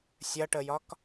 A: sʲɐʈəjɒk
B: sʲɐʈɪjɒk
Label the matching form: A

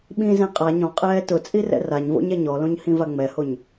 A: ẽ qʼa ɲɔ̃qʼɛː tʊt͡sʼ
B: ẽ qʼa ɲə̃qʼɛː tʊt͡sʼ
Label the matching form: A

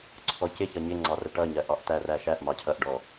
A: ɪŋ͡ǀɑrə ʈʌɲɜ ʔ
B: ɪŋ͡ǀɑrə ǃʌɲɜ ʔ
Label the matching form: A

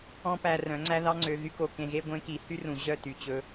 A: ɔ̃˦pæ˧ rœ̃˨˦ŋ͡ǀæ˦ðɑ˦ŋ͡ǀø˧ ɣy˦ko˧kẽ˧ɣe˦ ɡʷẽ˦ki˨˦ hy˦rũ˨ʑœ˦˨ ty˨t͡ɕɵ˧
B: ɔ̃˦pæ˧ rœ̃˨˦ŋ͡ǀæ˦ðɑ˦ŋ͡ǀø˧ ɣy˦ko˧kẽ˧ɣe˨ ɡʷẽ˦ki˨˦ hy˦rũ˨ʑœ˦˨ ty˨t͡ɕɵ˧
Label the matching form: A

